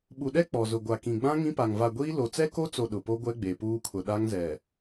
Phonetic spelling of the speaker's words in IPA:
ɓ u˨ ɗ ɛ˦ k͡p ɔ˨ z ʊ˨ ɡʷ a˨ k ĩ˨ ɡ͡b ã˦ ŋ ĩ˦ p a˨ ŋ v a˨ ɡʷ iː˦ l o˨ t͡s ɛ˦ k o˦ t͡s o˨ ɗ ʊ˨ p o˦ ɡʷ ɛ˦ ɡ͡b e˨ p uː˦ kʰ ʊ˨ ɗ a˦ ŋ z ɛ˨

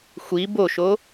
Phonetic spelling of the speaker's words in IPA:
xʷ i b o ʃ o

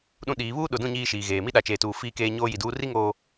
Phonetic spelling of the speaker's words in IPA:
ɗ ũ˦ ɗ iː˨˦ β uː˦ ɗ ʊ˨ d ũ˦˨ ɲ iː˦ ʃ iː˨ ɣ eː˨ m i˦ ɗ a˨ t͡ʃ eː˨ t uː˨ f iː˦ k eː˦ ɲ oː˦ j i˨ d uː˦ r i˦ ŋ oː˨

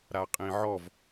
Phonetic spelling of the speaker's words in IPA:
ɾ a qʼ ĩ ʕ ɔ v

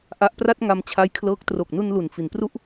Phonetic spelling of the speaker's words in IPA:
ʔ a˦˥ ʔ p r a˥˩ t̚ ŋ a˧ m t͡ɕʰ a˦˥ j kʰ l ɤː˦˥ k̚ t r o˨˩ k̚ n u˧ n l u˩˦ n f i˩˦ n p r u˥˩ ʔ

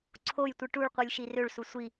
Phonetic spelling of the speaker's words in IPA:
ǀʰ o j tʷ ɯ ʈ u ɭ qʷ ɯ lʲ ʃ i r ø ɭ s u sʷ i

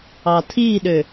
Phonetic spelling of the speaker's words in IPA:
ɑ tʰ i ɗ ø

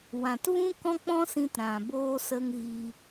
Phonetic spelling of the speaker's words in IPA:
w ã˨ t v ũ˦ k ɔ̃˦ k͡p ɔ̃˦ s ĩ˧ t ɾ ã˨ b oː˦ s ə˦ ŋ ɣ i˧

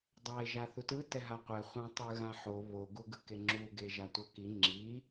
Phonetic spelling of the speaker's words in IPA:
dˤ a ɪ̯ ʒ a θ u t ɯ t ɛ ɦ a qʷ ɛ χʷ ã tˤ ɯ ɣ ã ħ o β o ɡ u ɡ ɯ k e ŋ͡ǁ u ɡ e ʒ a tʷ ʌ k i ŋ͡ǁ i

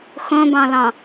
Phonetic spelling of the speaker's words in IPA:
x õ b ɑ̃ l ɑ̃

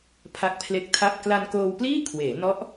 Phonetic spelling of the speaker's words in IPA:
pʰ a˦˥ k̚ pʰ l e˦˥ k̚ tʰ a˥˩ p̚ k l a˧ n k oː˧ w p l iː˥˩ kʰ w eː˩˦ n ɔ˦˥ ʔ

